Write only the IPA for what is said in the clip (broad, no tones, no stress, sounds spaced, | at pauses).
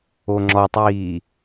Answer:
o ŋ͡ǁ ɔ tˤ iː